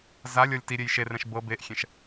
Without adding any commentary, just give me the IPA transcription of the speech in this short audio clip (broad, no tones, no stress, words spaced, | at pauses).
zalʲɔlʲ tiɾʲej ʃerɛ̃ʃ bɤ beʔxʲɛ̃ʃ